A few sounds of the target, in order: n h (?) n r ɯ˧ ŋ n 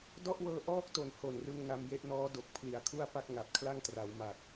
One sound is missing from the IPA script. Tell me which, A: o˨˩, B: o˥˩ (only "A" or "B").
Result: A